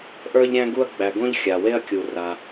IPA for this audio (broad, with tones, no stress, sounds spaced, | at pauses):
ʔ ə˞˥ ʎ ɾʲ æ̃˥ ɡ u˥ ɐ̯ ɡ͡b æ˩ ɡ õ˥ ʎ xʲ a˩ w e˥ ɐ̯ kʲ u˩ r a˩